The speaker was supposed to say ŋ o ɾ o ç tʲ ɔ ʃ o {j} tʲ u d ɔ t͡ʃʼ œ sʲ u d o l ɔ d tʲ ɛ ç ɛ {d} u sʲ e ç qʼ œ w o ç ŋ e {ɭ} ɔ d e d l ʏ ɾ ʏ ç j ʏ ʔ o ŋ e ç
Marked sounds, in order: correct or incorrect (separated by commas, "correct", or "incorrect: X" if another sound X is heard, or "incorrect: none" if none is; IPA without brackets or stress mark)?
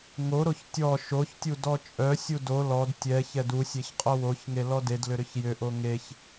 incorrect: ç, correct, incorrect: l